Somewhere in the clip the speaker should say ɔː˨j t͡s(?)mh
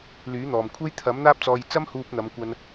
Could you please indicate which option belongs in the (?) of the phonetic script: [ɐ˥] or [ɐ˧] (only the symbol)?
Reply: ɐ˥